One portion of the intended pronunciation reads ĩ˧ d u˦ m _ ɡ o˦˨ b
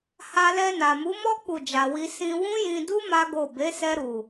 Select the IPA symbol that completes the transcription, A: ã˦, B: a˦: B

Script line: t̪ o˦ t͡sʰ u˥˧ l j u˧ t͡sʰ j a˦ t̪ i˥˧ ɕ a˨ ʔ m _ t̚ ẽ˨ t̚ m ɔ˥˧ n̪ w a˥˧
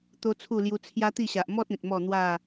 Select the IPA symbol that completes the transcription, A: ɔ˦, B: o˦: A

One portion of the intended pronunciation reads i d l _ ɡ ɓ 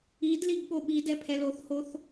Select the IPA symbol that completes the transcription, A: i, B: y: A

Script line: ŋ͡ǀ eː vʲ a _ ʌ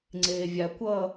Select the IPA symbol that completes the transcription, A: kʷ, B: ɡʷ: A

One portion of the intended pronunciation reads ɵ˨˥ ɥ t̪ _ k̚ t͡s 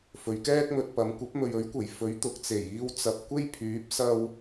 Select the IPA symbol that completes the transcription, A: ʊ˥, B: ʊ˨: B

